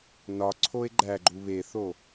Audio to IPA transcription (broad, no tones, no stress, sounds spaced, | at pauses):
n ɒ ǀʰ o e̯ ɡ͡ǃ æ ɡ͡ǃ u β e θ o